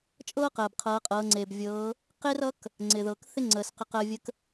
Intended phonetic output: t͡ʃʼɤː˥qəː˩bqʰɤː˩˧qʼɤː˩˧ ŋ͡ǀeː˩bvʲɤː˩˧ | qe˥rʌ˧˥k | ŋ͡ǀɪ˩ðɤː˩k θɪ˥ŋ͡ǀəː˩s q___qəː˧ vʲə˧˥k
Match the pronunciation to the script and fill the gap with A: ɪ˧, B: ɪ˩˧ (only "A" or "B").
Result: A